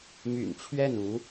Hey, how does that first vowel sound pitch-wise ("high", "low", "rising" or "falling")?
low